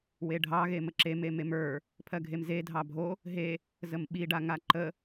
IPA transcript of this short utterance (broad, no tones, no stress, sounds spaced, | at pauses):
w e ɖʱ ɑ ɣ e m ə ǁ e m e m e m ə˞ | pʰ ɜ ɡʱ e m z e dʱ ɑ bʱ o | ɦ e | z ə m ɓ i ɖ a ŋ a ǃ ə